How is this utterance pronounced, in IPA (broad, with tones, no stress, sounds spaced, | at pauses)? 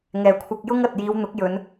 ŋ ɛː˨ kʷʰ ɐ˧ k̚ j ʊ˥ ŋ ɐ˨ t̚ j iː˨˧ w n̪ ʊ˨˥ k̚ j ɵ˨˧ n